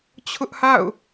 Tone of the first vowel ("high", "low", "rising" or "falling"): high